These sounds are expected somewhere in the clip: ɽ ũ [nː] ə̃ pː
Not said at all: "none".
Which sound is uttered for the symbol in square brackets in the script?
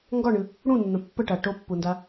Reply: nː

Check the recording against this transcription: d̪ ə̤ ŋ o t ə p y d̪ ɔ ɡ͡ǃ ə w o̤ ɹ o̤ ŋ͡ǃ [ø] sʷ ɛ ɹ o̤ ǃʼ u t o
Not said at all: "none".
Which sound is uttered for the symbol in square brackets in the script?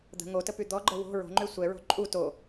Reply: ø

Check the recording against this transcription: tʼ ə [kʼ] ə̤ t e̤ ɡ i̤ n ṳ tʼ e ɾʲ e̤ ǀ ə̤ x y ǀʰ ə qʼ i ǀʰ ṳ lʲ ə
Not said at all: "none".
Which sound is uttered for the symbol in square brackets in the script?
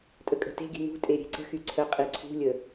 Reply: kʼ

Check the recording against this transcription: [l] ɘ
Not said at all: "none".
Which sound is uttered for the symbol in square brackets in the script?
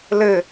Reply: l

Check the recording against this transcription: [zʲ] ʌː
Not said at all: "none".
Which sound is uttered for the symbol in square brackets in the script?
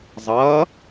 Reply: zˤ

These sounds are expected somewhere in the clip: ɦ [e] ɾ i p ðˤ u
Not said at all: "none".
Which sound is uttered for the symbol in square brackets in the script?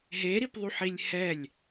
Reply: e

